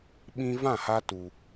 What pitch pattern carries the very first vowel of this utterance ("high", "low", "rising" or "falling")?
high